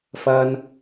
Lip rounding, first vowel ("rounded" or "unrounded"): unrounded